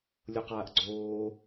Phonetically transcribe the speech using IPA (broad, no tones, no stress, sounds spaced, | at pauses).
lʲ o q aː ʔ ɡ͡ǀ oː